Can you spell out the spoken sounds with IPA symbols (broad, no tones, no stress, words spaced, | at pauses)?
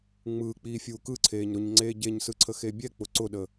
ŋ͡mɯː k͡piːfʲuːkɯǀʰeːɲ ɾʊɲ ŋ͡ǀeːɟeɲsɯ ǀʰəxebʲɛk͡pʊ ǀʊɗəː